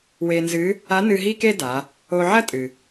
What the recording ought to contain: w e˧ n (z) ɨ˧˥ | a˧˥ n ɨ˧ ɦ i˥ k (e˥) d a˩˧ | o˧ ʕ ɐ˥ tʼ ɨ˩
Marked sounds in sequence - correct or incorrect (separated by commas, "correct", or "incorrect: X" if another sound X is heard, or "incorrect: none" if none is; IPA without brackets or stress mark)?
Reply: correct, correct